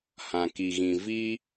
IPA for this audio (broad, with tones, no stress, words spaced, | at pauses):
hã˨ki˨ɣĩ˨ vi˦